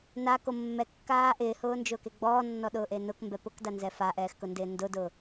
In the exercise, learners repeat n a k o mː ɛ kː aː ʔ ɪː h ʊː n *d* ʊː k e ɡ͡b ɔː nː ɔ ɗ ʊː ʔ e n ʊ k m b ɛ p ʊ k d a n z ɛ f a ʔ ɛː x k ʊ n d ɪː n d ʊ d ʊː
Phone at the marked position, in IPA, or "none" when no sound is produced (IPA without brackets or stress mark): d͡ʒ